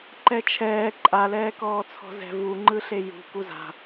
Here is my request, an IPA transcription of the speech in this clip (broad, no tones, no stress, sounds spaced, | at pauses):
ǃ ɛ t͡ʃʰ ɛː ǃʼ a l ɛː k ɔː t͡sʰ ɔ̤ z ɛ̤ v u ŋ͡ǃ ɯ ɬ e j ṳ k u z a̤